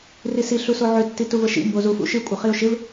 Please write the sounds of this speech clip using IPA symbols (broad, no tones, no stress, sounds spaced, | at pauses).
r i s i ɬ u s o ʕ ʏ tː i t u v ə ʃ ḭ m b o z u f ṵ ʃ ɨ kʷʼ ə χ i ʊ̯ ʃ ɪ v